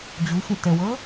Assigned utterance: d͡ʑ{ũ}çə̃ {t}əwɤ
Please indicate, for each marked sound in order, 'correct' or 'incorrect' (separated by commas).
incorrect, correct